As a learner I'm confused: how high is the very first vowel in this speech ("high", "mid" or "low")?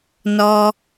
mid